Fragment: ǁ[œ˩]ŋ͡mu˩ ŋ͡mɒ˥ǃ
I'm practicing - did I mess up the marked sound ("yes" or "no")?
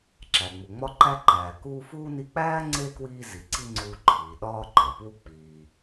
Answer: yes